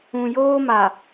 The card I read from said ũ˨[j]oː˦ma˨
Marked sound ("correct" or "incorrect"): correct